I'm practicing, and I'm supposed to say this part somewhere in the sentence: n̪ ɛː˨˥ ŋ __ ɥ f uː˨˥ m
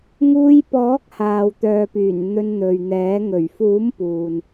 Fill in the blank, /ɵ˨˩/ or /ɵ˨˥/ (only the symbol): ɵ˨˩